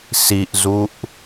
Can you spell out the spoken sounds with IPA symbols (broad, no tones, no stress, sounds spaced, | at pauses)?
s i ʔ z u ʔ